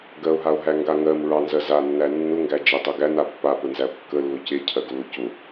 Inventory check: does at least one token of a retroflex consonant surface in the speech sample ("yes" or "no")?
no